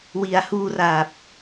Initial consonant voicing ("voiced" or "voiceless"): voiced